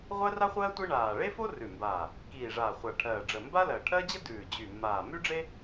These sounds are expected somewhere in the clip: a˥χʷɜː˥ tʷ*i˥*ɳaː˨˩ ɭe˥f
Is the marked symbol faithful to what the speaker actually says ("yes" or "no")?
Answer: yes